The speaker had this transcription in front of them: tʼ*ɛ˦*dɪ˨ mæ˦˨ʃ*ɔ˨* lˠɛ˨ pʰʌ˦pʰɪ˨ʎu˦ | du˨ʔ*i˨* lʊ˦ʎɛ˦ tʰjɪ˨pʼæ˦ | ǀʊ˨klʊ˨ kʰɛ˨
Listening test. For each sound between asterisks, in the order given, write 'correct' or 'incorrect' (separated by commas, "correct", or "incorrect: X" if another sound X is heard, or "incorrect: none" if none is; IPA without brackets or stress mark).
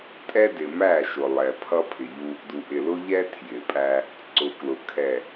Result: correct, incorrect: ʊ˨, incorrect: ɪ˨